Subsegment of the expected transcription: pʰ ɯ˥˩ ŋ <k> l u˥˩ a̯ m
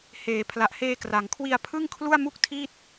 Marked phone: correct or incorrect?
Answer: incorrect